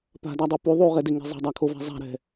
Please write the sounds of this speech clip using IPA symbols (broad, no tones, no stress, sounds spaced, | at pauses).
p a̤ d a dˤ o p u ðˤ u ʁ ɛ d e ŋ e̤ zˤ ɛ̤ dˤ a kʰ o v a̤ zˤ a̤ ɾ ɛ̤